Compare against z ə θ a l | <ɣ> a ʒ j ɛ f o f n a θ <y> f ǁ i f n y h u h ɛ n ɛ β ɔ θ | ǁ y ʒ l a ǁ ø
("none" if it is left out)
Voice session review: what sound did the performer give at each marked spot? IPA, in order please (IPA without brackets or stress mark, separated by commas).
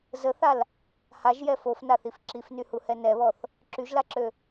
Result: h, i